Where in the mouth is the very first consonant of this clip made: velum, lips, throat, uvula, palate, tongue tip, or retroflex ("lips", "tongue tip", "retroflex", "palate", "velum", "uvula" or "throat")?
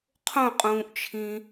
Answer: uvula